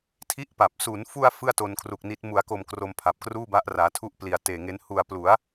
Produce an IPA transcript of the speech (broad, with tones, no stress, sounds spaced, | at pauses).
tʰ i˥˩ ʔ p a˨˩ p̚ s u˩˦ n f u˧ a̯ f ɯ˥˩ a̯ t o˧ n kʰ r u˨˩ k̚ n i˦˥ t̚ m u˩˦ a̯ k o˨˩ m k r o˧ m pʰ a˨˩ p̚ k r uː˥˩ b a˦˥ ʔ r aː˩˦ tʰ u˥˩ ʔ p l i˨˩ a̯ t eː˨˩ ŋ e˦˥ n h u˨˩ a̯ p l u˩˦ a̯